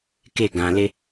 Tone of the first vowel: falling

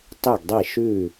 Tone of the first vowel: falling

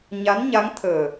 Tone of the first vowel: rising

